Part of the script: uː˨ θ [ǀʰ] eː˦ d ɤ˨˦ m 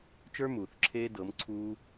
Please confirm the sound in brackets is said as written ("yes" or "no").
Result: no